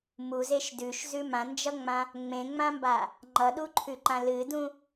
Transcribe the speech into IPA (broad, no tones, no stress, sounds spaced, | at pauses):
m u z e ʃ d ʉ ʃ z ʉ m ã n d͡ʒ ʌ ŋ͡m ã | ŋ͡m ẽ ŋ͡m ã m b a | ŋ͡ǃ ʌ ɗ u ǃʰ ʉ ǃ ã l ɨ d ũ